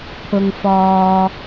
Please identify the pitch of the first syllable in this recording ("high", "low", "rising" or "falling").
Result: low